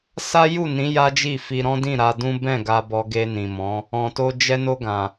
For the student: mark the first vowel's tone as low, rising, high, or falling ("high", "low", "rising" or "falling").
high